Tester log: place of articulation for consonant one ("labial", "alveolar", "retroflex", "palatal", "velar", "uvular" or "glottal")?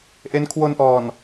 glottal